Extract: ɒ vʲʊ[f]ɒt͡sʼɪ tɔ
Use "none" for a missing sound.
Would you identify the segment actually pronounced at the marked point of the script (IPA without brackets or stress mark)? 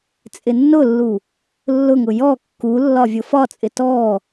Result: f